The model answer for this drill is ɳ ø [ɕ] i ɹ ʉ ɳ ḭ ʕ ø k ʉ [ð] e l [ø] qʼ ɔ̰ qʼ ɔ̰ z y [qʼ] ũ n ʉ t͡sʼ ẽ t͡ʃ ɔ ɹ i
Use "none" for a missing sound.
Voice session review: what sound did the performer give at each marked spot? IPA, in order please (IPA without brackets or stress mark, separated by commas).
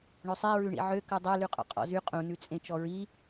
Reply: sˤ, dˤ, ʉ, qʼ